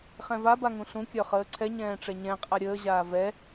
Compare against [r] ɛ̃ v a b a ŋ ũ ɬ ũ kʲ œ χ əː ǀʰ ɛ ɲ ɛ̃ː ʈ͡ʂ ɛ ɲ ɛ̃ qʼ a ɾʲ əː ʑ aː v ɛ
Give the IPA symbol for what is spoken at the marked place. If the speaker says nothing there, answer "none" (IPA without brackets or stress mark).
χ